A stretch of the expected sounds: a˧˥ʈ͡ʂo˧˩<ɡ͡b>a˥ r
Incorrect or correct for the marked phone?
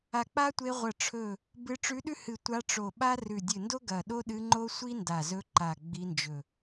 incorrect: ɓ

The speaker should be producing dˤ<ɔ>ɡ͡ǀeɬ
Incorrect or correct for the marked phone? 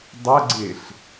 incorrect: ə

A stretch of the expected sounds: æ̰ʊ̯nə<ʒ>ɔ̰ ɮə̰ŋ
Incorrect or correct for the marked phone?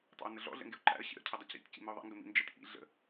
incorrect: ɮ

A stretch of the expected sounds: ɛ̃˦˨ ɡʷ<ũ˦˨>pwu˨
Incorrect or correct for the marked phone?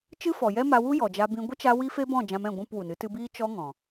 correct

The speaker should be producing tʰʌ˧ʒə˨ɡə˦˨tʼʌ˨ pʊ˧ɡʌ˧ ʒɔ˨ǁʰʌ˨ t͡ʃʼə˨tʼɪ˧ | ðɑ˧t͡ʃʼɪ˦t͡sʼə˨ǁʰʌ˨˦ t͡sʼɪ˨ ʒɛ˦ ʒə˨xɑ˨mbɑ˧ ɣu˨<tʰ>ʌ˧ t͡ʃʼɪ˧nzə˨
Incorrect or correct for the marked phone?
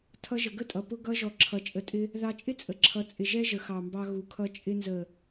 incorrect: kʰ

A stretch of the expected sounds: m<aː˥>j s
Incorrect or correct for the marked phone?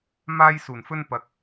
correct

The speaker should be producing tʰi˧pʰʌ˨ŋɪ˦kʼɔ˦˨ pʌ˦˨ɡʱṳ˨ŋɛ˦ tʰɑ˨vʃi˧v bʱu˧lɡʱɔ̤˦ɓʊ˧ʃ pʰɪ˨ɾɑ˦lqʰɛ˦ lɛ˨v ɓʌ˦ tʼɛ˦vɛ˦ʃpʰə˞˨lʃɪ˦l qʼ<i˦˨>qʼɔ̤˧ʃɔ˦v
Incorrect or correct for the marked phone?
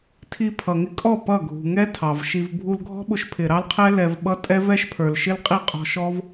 correct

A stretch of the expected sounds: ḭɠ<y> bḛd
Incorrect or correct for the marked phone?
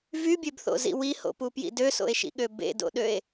incorrect: ø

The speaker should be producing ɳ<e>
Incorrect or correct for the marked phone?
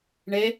correct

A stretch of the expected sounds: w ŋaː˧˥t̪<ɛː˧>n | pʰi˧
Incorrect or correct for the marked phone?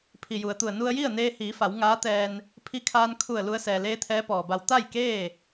correct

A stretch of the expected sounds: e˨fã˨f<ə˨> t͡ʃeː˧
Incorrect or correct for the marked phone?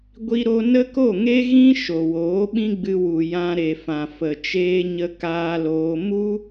correct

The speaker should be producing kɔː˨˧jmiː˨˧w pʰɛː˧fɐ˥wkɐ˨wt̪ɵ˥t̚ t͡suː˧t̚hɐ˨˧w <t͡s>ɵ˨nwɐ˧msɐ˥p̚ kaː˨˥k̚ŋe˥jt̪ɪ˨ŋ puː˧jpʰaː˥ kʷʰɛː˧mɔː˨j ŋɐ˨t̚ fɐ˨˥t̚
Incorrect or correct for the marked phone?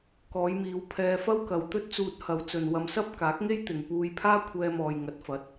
correct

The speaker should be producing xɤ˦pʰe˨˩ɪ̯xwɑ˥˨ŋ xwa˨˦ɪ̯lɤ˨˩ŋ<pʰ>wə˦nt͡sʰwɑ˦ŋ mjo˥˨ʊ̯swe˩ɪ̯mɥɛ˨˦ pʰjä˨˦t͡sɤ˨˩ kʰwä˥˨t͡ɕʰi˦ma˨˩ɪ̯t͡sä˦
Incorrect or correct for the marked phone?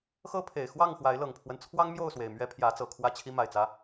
correct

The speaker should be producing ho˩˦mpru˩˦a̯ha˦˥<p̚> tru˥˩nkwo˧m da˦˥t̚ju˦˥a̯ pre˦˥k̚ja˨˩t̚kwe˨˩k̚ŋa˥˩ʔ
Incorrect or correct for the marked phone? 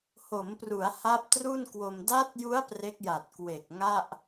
correct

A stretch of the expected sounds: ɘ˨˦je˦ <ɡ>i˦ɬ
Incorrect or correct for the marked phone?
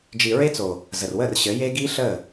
correct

